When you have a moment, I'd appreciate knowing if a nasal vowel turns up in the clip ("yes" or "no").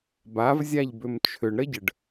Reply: no